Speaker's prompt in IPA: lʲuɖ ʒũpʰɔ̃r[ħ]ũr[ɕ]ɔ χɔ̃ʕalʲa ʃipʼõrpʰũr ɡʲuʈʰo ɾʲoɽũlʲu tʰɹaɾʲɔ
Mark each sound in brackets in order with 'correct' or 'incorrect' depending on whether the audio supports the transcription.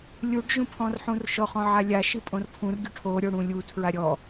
correct, incorrect: ʃ

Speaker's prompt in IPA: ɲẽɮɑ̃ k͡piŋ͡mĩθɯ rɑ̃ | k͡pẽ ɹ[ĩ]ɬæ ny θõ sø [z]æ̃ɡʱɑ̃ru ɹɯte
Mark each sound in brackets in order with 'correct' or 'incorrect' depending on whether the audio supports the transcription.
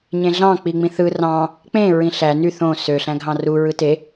correct, incorrect: ɬ

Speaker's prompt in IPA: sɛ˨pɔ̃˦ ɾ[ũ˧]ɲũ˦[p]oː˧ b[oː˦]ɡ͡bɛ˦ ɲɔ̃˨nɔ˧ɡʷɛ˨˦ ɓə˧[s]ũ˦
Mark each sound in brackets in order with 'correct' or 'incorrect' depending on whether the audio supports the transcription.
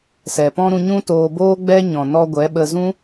correct, incorrect: t, correct, incorrect: z

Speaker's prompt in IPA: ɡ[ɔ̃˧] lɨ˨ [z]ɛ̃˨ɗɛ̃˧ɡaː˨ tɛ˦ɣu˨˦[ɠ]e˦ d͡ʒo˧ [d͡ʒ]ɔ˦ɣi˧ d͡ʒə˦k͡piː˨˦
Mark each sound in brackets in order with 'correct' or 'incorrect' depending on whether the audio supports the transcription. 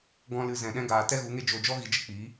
correct, correct, incorrect: ŋ, correct

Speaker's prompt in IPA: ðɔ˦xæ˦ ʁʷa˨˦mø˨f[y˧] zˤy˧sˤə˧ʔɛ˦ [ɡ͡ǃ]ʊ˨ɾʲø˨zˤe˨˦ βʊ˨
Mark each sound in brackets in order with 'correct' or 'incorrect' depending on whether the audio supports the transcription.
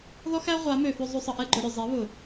correct, correct

